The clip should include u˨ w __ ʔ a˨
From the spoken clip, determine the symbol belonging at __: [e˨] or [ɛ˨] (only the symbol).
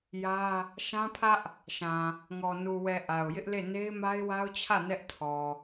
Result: ɛ˨